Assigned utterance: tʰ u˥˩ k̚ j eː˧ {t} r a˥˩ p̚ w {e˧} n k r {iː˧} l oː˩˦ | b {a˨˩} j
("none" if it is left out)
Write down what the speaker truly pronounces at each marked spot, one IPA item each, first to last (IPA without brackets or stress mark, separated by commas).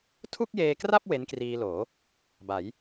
k, e˦˥, iː˧, a˩˦